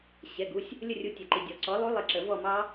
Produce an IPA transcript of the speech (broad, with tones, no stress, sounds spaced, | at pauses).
ɕ ɛ˩˧˩ ɡ u˩˧˩ sʲ | lʲ ə˦˨ rʲ u˨˥ tʲ ɛ˩ ǃ i˩ dʲ ɔ˩ ǀ ɔ˨˥ lˠ u˦˥ lˠ ɪ˦˨ ǁ ə˨˩˦ v ɔ˦˨ m ɑ˦˥